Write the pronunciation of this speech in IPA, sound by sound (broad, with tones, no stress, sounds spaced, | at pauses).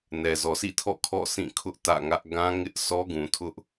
n ɛ˨ z ɔ˨ sʰ ḭ˦˨ tʰ ɔ̰˦˨ kʰ ɔ̰˦˨ s ĩ˦˨ kʰ ʊ˦ ʔ t ä̰˦˨ ŋ ä˦ ʔ ɡ ã˦ ŋ ɪ˦ ʔ s ɔ˦ ɡ ũ˨ tʰ ʊ˦ ʔ